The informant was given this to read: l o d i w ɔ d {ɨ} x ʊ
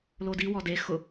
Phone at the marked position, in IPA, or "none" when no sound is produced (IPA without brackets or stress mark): e